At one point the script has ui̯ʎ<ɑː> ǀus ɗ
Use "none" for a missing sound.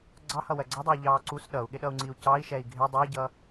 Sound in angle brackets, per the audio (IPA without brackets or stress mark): ɑː